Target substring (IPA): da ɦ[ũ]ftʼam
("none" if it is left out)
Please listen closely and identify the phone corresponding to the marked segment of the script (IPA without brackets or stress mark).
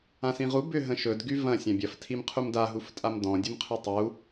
u